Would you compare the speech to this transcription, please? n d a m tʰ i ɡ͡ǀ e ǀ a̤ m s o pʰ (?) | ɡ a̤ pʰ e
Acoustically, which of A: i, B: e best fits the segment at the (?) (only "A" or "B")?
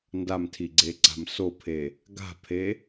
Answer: B